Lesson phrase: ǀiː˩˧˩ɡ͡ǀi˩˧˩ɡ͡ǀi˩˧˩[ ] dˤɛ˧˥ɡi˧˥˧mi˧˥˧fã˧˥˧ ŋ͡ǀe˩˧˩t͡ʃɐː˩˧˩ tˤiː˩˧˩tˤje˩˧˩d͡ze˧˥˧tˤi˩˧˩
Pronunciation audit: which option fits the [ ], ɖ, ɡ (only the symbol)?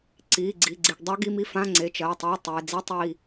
ɡ